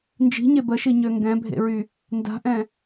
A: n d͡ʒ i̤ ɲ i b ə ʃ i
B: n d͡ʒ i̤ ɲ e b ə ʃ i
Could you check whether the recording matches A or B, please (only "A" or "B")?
B